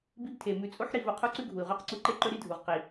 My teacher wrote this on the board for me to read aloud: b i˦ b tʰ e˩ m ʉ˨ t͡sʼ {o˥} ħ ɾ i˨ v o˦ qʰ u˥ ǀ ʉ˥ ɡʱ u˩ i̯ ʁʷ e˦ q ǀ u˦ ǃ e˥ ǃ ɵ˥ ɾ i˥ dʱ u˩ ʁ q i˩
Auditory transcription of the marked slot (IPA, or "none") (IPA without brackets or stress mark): o˥